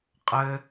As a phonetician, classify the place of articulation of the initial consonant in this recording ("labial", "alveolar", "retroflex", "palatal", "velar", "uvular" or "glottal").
uvular